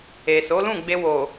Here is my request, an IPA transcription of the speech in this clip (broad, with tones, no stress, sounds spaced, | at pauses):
e˨ s o˨˦ l ũ˦˨ ɡ͡b e˧ w o˨